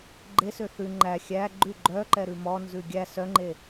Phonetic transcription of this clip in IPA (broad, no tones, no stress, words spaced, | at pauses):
ɡ͡ǃesø θʉ ŋ͡ǃæ xʲæ ɡ͡ǃʉ ɡ͡ǃœǃɛɾʉ mɔnzʉ ɡʲæ sœŋ͡ǃe